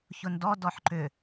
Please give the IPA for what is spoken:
çʊndɔ dɔħǃʏ

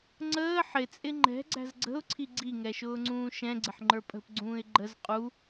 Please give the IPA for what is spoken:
ŋ͡ǀəː ħɪt͡sʼɪ ŋ͡ǃɛ̤ɡ͡ǀæ̤z ɡ͡ǀə̤ʊ̯ǀʰi ɡ͡ǀiŋɛʃʊːŋ͡ǀũː ʃɛ̃ɡ͡ǀɪħŋ͡ǃə˞ pʼə̤pɡ͡ǀũːɪ̯ ɡ͡ǃəz qʼu

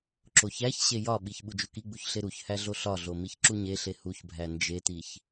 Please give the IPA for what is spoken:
ǁoçæçɕe jɒɓiç ɓud͡ʒukiɡ͡buç ɬeɾuçhæ ɮoɬɒɮo miçǁuɲeɬe huçbʱæ nd͡ʒetiç

